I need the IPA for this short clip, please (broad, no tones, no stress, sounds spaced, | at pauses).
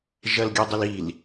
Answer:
ʒ ɐ l ɡʲ ɔ dˤ ə l i l